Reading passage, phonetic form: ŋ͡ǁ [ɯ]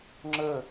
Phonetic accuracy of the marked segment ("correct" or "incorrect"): incorrect